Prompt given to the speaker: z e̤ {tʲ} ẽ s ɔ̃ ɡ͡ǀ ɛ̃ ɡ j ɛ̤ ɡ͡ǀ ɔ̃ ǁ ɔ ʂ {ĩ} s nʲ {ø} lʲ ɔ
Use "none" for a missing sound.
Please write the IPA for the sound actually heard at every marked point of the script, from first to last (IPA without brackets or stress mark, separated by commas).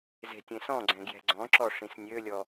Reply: tʲ, ĩ, ø